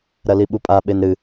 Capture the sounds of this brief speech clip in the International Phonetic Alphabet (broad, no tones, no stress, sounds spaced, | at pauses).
ɾ ɐ l i ɓ u pʼ a ɓ e n ɾ ɨ